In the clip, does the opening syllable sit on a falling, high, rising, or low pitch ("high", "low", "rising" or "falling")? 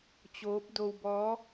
rising